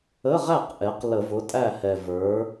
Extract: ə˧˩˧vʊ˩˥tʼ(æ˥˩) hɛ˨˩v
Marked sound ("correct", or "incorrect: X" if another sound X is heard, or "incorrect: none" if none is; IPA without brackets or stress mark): correct